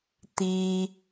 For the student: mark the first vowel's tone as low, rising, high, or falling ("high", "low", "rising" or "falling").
high